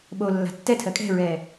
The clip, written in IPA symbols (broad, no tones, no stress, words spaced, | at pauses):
ɓo lːa̤tːɛtʰɜ kʼɛ̤ɹɛː